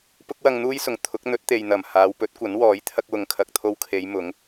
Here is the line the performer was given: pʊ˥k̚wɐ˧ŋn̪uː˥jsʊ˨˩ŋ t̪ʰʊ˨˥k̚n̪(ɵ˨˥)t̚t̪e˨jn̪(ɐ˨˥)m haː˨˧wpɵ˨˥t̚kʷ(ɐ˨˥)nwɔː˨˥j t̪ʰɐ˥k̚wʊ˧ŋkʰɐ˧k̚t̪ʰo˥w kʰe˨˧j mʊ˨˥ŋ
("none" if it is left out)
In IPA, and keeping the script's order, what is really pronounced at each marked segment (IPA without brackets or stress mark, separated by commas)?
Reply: ɵ˨˥, ɐ˨˩, ɐ˨˥